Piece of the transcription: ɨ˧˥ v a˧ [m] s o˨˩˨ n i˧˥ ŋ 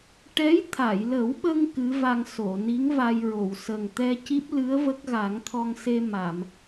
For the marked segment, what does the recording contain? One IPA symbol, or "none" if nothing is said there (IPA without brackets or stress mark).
ŋ